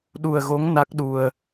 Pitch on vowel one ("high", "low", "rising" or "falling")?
low